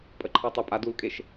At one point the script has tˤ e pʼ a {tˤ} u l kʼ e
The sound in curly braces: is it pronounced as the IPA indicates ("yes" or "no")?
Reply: no